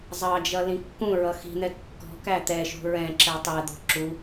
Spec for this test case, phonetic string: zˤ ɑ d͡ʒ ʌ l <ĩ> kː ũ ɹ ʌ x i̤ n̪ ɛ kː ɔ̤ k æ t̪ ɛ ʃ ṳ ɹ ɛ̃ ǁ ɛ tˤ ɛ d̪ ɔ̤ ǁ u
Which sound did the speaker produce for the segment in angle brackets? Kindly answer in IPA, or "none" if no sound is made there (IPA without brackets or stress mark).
ĩ